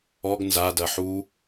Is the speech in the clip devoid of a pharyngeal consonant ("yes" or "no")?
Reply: no